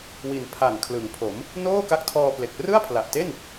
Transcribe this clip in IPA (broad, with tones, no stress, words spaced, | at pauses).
wi˩˦n pʰa˨˩n kʰlɯ˩˦ŋpʰo˩˦m | noː˥˩ka˦˥k̚tʰɔː˧ple˨˩k̚ rɯ˥˩a̯pʰla˨˩ʔte˥˩n